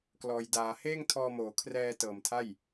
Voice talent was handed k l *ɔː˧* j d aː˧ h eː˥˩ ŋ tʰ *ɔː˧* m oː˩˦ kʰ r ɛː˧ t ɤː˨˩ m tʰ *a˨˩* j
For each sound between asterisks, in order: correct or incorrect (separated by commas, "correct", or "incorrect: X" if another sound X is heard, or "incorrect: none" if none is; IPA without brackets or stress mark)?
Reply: correct, correct, incorrect: a˥˩